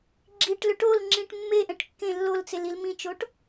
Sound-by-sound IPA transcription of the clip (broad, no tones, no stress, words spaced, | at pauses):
ɡ͡ǁiʈlʏ ʈolŋ͡ǁĩʈ mːeʔɛ̃ʈ kːẽ lːolt͡selil mĩt͡ʃoʈ